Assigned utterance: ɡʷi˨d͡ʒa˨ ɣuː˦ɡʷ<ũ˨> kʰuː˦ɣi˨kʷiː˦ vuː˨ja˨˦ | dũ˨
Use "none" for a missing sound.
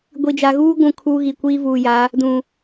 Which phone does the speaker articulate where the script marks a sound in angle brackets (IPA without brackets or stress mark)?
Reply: ũ˨